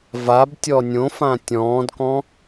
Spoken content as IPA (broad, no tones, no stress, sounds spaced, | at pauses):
v a b tʲ ɔ nʲ õ f ã tʲ ɔ̃ː d k ɔ̃